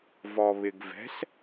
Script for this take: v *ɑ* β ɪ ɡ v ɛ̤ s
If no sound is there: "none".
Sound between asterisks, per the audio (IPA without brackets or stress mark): ɔ